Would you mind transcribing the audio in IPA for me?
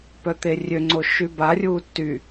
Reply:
p œ t̪ e rʲ ø ŋ͡ǀ o ʃ y b a rʲ uː tː y

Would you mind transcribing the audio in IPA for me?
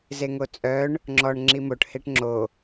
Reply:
z e ŋ o t͡sʼ œ ɳ | ŋ͡ǁ ɔ ɳ ŋ͡ǁ i m o ʈ h e ʈ ŋ͡ǁ o

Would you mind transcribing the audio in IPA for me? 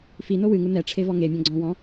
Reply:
f i n o w ɨ ŋ u n ɛ ʈ͡ʂʰ e v ɔ ŋ e mʲ ɔ̃ ɡ͡ǀ ɔ̃ w ɔ̃

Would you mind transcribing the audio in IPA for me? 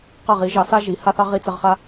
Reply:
q ɐ˥˧ ʁ i˨˥ ʒ ɑ˨˥ s a˥ ʒ i˨˥ h a˥ θ ɑ˥ ʁ i˥ t͡s ɘ˥ ʁ χ a˥

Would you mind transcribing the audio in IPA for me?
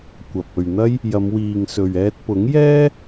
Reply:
kʷ ɐ˨ p̚ ɵ˨ ɥ n̪ ɐ˥ j | j ɐ˨˧ m w iː˨ ŋ s ɵ˨ ɥ ɛː˧ t̚ p ʊ˨˥ ŋ j ɛː˥

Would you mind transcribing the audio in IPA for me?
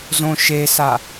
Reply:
z õ ʃ e s a

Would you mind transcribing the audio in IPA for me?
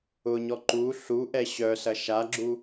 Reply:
ʊ ɲ ɔ ǃ u ɬ u ʔ ɛ ɕ œ s ɐ ʃ a ɡ͡ǁ u

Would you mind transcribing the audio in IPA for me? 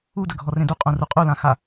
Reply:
u d ə ɡʱ ɔ r ẽ d u qʼ ũ r u qʼ u l ã x a

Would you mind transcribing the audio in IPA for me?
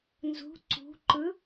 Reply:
n z ṳ ǀ ṳ ǃ ɯ

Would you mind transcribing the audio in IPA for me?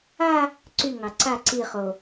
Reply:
a | ǀ y ŋ ɑ ǀ a ǀ i χ o

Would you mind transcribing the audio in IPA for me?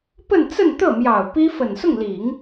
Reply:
p ə˥˧ n t͡s ə˥˧ n t̪ ɤ˥˩ m j ɑ˨˩ ʊ̯ p i˥ f ə˨˩ n s ʊ˥˩ ŋ l i˨˩˦ ŋ

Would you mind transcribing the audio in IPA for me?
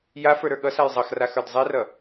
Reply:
j a f ə˞ ɾ ə˞ ɠ ʌ s a j zˤ ʌ x r a x ə˞ d zˤ i r ʌ

